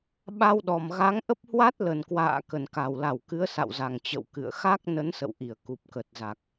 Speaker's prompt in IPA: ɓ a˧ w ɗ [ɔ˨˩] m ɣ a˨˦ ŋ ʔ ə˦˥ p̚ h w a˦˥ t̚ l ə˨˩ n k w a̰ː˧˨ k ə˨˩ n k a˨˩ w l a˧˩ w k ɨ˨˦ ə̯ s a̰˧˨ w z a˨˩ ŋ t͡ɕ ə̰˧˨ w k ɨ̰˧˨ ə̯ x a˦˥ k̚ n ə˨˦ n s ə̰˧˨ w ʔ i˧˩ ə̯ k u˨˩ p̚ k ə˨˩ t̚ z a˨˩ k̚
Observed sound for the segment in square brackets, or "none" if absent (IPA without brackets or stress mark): ɔ˨˩